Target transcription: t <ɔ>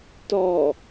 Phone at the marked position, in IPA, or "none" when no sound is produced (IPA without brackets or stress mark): ɔ